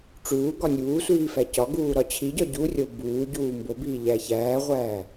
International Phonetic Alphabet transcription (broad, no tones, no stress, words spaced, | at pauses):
ʈ͡ʂuː ɡɒnʲuːsʷiː fæcɒɡuː ɾɒt͡ɕʰiɟɒ ɟurʲo buːɟuː mbobiː ʎæçæːʁʷæː